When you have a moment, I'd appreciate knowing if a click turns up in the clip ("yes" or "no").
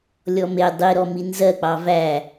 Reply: no